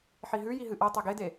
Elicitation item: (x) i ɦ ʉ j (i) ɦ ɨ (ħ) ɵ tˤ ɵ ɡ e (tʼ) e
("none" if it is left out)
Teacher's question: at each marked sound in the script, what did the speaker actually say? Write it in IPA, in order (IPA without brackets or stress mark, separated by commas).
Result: ħ, i, ʔ, d